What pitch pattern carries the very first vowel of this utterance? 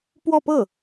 falling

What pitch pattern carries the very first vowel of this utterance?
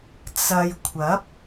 low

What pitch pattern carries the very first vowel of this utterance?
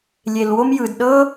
low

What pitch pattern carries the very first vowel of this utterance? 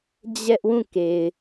high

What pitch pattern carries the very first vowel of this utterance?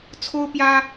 high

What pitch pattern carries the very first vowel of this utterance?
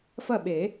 falling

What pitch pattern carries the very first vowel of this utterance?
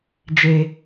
low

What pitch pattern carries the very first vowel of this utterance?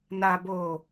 low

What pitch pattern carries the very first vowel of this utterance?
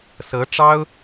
rising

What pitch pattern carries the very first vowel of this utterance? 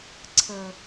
low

